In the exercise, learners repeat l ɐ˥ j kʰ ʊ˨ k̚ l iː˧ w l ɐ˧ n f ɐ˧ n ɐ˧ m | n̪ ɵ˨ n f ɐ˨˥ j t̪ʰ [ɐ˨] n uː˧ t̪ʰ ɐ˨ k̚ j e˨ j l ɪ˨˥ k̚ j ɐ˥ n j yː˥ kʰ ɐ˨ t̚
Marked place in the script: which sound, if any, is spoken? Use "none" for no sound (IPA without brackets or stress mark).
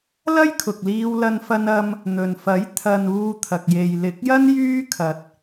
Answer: ɐ˨